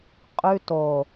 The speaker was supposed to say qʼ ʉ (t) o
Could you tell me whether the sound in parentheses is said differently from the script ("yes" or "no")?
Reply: no